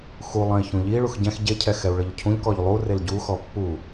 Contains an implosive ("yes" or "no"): no